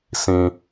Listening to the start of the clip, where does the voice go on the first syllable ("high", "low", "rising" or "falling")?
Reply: low